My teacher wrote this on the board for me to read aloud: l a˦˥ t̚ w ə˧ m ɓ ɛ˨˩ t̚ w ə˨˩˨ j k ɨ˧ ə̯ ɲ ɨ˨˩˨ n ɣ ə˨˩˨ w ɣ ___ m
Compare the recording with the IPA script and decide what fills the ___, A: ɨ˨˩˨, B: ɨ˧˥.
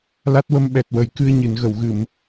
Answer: A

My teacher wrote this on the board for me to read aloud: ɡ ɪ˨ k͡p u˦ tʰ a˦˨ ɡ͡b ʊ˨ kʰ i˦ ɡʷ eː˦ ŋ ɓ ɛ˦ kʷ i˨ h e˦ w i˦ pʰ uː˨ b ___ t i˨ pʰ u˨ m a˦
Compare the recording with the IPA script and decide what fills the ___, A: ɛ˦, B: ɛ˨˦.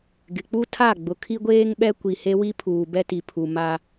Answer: A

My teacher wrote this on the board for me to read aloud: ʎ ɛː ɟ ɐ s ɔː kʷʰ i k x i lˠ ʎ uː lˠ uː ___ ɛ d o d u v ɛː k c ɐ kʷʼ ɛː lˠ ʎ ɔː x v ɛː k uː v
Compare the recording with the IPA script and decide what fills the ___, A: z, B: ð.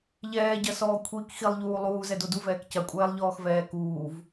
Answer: A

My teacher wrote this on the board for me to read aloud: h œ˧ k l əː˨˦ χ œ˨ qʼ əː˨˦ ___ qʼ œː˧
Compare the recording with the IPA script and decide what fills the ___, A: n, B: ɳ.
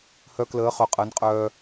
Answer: A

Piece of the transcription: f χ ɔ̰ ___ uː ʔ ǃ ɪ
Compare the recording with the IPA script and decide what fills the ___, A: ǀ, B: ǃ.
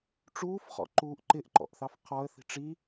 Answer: B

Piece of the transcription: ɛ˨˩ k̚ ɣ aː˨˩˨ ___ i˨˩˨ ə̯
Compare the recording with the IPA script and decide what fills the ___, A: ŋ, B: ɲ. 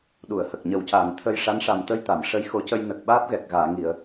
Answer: A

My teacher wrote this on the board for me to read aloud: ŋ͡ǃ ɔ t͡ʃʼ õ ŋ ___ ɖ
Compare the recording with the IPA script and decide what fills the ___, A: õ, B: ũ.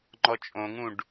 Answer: B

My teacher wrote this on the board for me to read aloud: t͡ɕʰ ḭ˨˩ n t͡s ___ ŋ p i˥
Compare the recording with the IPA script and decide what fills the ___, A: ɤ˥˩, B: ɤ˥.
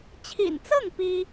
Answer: A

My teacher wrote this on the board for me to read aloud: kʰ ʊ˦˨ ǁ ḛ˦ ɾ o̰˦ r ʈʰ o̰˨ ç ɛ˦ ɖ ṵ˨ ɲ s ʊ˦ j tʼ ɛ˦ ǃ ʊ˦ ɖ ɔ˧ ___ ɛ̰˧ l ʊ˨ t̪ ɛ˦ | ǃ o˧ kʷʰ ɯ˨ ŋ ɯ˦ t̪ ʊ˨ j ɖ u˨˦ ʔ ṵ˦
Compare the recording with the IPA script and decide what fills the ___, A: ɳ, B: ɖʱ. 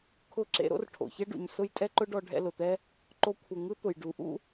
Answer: B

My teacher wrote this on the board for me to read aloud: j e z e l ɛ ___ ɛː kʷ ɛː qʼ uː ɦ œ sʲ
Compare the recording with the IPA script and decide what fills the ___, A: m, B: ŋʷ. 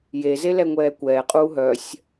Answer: B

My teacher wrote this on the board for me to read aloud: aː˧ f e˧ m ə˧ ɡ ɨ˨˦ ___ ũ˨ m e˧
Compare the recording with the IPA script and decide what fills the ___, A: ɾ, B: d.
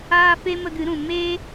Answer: A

